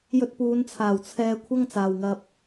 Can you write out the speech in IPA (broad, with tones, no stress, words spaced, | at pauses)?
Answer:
jɵ˧t̚puː˨˧nt͡sʰaː˨˩w t͡sʰɛː˧ kʷʰɐ˥ŋt͡saː˨wŋɐ˧p̚